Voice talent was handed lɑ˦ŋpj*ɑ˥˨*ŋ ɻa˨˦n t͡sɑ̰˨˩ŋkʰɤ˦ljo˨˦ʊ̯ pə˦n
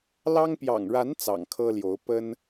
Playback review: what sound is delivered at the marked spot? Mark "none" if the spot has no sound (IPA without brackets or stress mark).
ɑ̰˨˩